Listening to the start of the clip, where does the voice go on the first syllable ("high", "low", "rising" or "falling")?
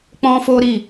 high